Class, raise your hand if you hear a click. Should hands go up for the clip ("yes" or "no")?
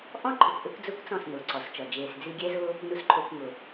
yes